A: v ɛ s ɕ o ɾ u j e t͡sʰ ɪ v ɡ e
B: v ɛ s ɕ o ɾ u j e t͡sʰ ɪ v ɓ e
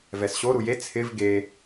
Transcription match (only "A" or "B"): A